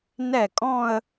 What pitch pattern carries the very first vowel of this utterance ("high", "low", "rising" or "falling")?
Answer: falling